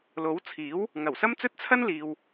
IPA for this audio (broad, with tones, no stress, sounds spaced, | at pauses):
l o˨˥ w t͡sʰ iː˨˥ w | ŋ ɐ˨˩ w s ɐ˥ m t͡s ɵ˥ t̚ t͡sʰ ɐ˥ n l iː˨ w